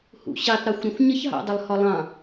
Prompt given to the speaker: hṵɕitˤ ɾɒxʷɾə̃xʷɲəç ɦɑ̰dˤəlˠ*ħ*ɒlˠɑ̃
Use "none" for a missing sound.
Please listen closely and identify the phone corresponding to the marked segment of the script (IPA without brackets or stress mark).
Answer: h